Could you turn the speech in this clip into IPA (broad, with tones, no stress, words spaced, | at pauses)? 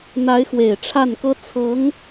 n̪a˧˥ɪ̯xwe˨˩ɪ̯ ʈ͡ʂʰa˥˩nkɤ˥ t͡sʰɤ˧˥ŋ